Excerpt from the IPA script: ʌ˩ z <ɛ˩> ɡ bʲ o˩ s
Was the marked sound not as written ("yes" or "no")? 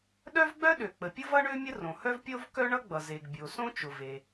yes